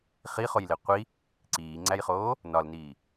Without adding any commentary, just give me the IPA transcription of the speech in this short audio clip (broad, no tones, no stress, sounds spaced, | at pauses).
χ i χ o j l e qʷ i | ǀ iː ŋ͡ǀ æ j χ oː | n ɒ l n iː